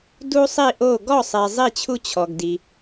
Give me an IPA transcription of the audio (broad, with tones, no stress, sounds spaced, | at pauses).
d u˥ sˤ i˥˧ ʔ o˥˧ ɡ ɔ˥˧ sˤ e˧ zˤ i˥˧ t͡ɕʰ u˥ t͡ɕʰ ɔ˧ ɡ d i˧